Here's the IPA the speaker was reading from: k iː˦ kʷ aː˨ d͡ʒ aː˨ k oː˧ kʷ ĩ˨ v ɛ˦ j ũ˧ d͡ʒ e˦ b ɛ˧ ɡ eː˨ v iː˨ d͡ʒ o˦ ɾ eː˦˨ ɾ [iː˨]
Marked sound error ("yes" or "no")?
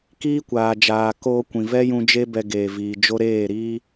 yes